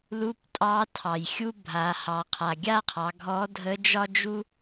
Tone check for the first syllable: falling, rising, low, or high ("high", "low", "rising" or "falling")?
rising